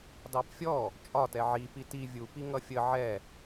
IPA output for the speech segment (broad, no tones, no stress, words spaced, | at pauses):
dɑpfʲɔ | t͡ʃʼɒtɛ ʕipi ti vʲupi ŋʌfʲə ʕɛ